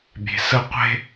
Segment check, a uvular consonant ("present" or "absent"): present